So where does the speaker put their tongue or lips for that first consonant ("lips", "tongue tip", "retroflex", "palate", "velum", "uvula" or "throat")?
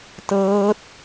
tongue tip